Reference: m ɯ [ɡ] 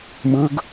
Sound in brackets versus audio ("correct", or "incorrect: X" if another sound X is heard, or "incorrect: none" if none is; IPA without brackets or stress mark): correct